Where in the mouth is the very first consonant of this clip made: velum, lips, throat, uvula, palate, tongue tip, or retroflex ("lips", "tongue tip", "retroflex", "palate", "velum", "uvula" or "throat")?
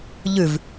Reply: palate